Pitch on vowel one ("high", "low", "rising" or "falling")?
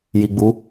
low